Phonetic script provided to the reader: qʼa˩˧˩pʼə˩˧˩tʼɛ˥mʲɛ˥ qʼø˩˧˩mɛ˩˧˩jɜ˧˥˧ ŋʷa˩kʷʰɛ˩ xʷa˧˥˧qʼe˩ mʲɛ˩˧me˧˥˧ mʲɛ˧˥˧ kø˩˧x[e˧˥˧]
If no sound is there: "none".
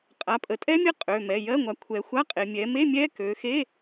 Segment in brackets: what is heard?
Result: e˧˥˧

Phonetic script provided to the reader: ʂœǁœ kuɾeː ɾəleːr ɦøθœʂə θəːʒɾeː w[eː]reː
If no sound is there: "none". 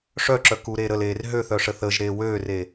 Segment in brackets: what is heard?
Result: øː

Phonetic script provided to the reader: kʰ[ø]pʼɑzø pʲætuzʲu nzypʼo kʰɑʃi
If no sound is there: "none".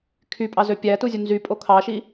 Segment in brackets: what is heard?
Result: y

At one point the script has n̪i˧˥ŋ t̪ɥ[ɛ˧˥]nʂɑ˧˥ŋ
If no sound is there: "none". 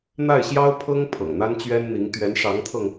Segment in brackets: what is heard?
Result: ɛ˧˥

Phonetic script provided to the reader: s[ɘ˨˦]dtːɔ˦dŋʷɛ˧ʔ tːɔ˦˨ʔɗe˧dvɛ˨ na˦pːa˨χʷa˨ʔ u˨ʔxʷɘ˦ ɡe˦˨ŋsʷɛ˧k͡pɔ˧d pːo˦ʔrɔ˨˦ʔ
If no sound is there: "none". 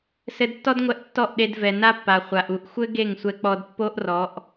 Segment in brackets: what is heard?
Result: ɘ˧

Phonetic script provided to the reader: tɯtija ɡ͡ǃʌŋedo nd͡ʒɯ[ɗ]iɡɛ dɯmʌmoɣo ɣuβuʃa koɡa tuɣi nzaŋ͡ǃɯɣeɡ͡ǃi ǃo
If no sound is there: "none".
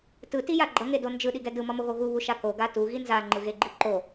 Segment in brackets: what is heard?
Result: ɗ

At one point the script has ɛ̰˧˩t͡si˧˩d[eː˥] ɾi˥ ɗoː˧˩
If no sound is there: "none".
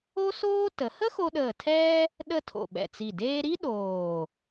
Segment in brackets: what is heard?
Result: eː˥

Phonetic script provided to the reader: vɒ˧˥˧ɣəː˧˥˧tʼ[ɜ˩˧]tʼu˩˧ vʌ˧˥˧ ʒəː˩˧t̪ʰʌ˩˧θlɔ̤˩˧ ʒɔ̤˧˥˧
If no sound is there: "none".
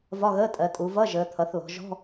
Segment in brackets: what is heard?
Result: ɜ˩˧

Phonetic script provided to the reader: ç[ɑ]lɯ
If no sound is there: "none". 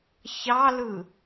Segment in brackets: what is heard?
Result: ɑ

